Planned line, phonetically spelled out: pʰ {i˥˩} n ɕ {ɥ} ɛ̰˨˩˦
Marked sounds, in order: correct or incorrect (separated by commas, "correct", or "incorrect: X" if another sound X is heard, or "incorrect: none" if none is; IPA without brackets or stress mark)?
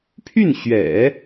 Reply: incorrect: y˥˩, correct